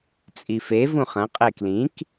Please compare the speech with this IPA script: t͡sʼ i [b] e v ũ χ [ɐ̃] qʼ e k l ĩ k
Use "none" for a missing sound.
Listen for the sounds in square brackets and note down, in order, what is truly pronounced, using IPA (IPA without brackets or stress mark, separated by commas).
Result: f, ɐ̃